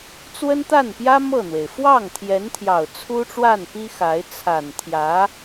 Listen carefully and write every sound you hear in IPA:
t͡s w ə˥ n t̪ a˥˩ n p j ä˥ m ɤ˥˩ n̪ w e˩ ɪ̯ f w ɑ˥˩ ŋ t̪ʰ j ɛ˧˥ n t̪ʰ j ɑ˨˩ ʊ̯ t͡sʰ u˥ ʈ͡ʂ w a˥˩ n p i˥ x a˧˥ ɪ̯ t͡sʰ a˨˩ n t̪ʰ j ä˧˥

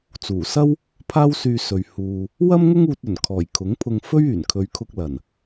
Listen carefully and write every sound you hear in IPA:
t͡s uː˨˩ s ɐ˥ w | pʰ aː˥ w s yː˧ s ɵ˨ ɥ h uː˨ | w ɐ˥ m ŋ ʊ˥ ŋ uː˧ t̚ ɵ˨˩ n kʰ ɔː˨˩ j kʰ ʊ˨˥ ŋ pʰ ʊ˧ ŋ f ɵ˥ ɥ yː˨˩ n kʰ ɵ˨˧ ɥ kʰ ʊ˧ k̚ l ɐ˨˩ n

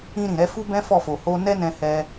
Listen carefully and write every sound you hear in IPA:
ĩ˧ ɾ ĩ˨ ɾ ɛ˧ f u˦ b ɛ̃˦ f ɔ˦˨ f o˨ h o˧ n ɛ˦ n ɛ̃˧ h ɛ˧

